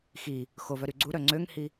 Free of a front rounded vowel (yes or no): no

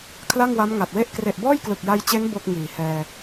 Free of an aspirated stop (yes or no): no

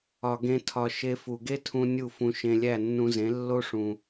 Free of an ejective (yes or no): yes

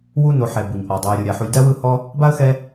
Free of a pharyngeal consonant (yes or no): no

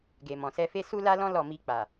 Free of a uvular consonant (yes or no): yes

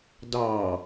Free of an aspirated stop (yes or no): yes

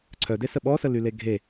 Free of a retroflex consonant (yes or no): yes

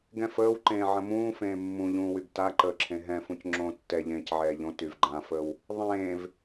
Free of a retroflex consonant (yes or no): yes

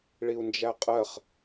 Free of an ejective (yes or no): no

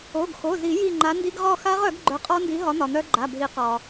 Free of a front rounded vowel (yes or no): no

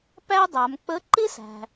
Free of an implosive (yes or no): yes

